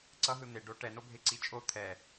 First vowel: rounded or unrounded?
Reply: unrounded